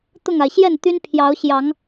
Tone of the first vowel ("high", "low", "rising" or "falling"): falling